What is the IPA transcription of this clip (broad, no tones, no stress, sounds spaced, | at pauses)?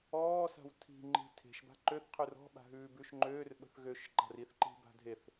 ɔː s a̤ w tʰ i̤ ŋ͡ǃ i̤ tʰ e̤ ʃ b a̤ ǃ ø θ qʰ ʉ r ɔ̤ ɓ a̤ ɦ ʉː b ʉ ʃ ŋ͡ǃ øː r ɓ ə̤ θ ɣ ø ʃ ǃ a̤ r i θ ǃ i̤ b a̤ dʱ e θ